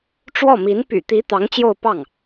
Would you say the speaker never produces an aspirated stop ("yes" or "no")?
yes